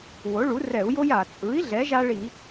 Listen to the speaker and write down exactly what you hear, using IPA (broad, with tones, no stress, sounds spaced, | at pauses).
w o˩˥ ɭ u˩˥ r ɛ˧˩˧ u̯ j o˦ j a˩ t͡sʼ ɯ˩˥ i̯ ɮ ɛ˩˥ ʒ a˦ ɭ i˧˩˧